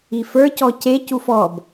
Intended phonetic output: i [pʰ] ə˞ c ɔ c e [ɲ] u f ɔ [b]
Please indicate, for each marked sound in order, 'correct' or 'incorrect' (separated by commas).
incorrect, incorrect, correct